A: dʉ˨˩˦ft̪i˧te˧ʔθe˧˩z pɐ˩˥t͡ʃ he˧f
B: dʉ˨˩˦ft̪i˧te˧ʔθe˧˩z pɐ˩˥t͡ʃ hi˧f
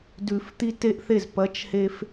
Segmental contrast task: A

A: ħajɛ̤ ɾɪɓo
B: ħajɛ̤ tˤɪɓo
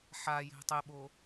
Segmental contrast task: B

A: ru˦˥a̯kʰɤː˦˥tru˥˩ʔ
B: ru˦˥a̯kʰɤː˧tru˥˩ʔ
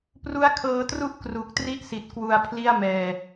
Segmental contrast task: B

